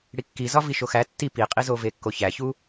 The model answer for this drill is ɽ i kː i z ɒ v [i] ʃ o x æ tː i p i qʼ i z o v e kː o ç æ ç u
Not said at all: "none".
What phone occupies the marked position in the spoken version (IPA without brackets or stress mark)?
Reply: i